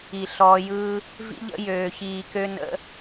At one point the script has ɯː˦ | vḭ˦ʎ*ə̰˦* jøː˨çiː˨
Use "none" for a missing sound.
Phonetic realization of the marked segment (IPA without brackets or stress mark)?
ə̰˦